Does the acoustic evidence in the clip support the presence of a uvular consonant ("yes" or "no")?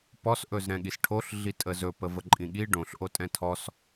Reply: no